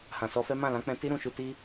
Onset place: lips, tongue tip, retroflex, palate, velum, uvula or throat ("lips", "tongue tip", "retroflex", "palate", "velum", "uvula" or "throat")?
throat